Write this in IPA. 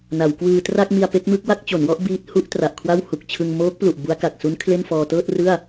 n a˩˦ w k w ɯː˧ t r a˥˩ k̚ m i˧ a̯ p e˦˥ k̚ m ɯ˦˥ k̚ w a˥˩ k̚ t͡ɕ o˩˦ n w ɔ˥˩ ʔ b iː˦˥ t̚ h u˦˥ ʔ t r a˨˩ ʔ kʰ w a˥˩ w h u˨˩ k̚ t͡ɕʰ ɯ˧ ŋ m oː˦˥ k̚ p l u˨˩ ʔ b u˦˥ a̯ k a˨˩ k̚ s u˦˥ n kʰ l e˥˩ n f ɔː˧ t ɤː˥˩ t̚ r ɯ˥˩ a̯

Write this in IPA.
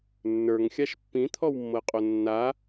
nː ə˞ ŋ xʲ a ʃ pː ĩ t̪ʰ ɔ w mː ɤ qʼ o nː a

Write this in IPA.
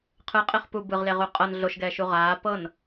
qʰ ɯ qʼ e χ p u b ɯ ʁ l e ʁ u qʼ ɤ n ɮ o ʃ ɡ ɛː ʃ u ʁ aː p ɤ n

